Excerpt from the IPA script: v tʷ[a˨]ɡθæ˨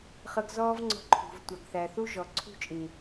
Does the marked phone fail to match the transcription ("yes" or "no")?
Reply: no